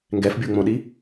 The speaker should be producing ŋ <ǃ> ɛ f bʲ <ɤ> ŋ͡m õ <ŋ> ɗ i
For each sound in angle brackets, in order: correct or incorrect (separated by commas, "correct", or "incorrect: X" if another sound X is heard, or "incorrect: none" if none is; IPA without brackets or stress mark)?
incorrect: ɡ, incorrect: o, incorrect: none